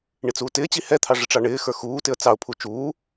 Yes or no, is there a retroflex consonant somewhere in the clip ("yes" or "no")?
yes